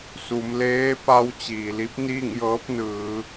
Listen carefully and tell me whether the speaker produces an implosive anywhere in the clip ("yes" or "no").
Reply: no